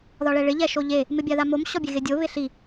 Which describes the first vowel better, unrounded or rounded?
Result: rounded